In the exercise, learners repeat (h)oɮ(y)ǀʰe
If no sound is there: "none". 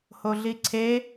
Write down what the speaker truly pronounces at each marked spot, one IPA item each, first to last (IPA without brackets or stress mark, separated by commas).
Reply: h, i